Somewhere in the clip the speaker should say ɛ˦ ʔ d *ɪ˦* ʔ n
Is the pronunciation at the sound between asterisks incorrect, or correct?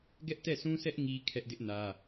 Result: correct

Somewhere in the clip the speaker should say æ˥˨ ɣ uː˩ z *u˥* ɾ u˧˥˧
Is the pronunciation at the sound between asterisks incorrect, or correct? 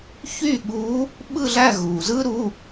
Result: incorrect: ɯ˥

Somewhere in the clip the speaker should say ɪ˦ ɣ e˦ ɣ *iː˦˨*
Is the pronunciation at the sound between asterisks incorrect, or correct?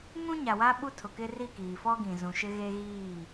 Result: correct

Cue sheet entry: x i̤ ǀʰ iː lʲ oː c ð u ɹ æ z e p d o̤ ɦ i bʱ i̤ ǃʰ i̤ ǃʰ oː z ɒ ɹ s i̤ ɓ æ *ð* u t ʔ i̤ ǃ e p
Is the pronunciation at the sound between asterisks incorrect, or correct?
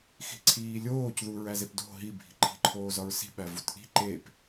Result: incorrect: v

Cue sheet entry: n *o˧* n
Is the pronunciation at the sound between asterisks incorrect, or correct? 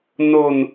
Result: correct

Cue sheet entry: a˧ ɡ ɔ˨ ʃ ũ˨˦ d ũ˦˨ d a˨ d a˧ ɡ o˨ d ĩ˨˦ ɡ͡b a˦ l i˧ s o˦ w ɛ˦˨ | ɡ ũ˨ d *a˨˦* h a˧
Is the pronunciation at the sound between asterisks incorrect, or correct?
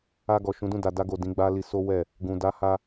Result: correct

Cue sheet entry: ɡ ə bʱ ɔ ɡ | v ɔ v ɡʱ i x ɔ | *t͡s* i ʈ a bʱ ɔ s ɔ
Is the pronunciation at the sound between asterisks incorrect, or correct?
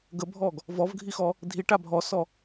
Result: incorrect: dʱ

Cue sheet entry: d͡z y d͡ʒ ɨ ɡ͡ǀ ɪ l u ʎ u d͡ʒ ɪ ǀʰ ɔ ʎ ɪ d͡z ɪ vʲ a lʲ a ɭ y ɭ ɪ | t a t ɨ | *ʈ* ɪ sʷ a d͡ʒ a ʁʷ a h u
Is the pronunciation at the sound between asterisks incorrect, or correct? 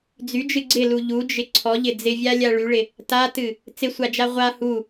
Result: incorrect: t͡s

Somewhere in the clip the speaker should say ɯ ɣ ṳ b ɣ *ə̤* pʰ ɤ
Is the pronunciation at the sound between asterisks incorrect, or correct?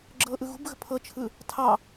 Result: correct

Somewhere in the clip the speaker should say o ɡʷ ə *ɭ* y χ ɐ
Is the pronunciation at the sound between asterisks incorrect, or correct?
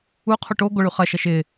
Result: correct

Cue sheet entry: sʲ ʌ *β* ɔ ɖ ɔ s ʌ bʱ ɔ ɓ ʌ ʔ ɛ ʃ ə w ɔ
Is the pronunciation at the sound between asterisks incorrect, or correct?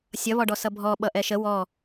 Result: correct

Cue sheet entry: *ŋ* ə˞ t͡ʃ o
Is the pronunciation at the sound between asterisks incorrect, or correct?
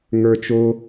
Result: correct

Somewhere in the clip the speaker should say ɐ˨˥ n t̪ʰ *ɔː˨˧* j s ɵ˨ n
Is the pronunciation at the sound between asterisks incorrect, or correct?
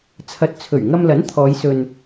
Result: correct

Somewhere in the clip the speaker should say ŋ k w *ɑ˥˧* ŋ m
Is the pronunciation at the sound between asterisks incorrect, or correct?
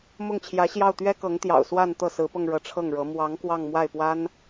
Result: correct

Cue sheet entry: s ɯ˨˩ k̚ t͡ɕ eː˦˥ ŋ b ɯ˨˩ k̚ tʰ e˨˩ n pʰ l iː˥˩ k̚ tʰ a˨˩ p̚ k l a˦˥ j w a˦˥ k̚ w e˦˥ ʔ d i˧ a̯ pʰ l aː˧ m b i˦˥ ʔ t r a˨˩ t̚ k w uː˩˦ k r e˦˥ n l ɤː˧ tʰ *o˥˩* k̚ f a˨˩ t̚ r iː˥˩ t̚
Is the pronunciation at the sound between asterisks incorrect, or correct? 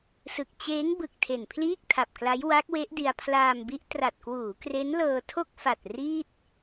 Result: correct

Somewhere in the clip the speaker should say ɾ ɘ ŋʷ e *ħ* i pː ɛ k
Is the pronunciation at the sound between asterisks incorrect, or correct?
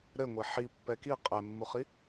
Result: correct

